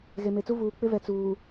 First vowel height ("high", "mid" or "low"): mid